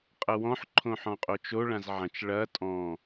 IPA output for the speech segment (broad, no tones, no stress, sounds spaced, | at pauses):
qʼ ɐ w ɔ̃ ħ ǃʰ õ ħ ɔ̃ qʼ o t͡ʃ o ɭ ã z ʕ ɐ̃ t͡ʃ ɭ ɐ tʼ ɔ̃